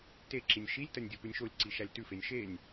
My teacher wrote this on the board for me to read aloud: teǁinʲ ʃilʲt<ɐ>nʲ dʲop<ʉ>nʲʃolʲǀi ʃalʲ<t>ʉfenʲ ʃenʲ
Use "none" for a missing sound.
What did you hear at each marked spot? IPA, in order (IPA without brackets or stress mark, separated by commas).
ɐ, ʉ, t